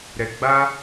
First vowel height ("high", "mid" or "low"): mid